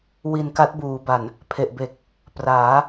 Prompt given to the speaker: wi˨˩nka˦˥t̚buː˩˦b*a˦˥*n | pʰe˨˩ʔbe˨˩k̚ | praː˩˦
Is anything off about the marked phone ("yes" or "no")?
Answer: yes